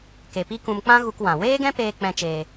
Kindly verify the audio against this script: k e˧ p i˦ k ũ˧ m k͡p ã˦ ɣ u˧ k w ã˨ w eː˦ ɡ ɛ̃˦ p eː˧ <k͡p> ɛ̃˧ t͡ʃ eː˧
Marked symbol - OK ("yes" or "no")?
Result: yes